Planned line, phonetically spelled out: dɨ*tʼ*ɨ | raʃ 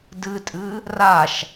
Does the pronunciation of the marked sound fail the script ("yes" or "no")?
no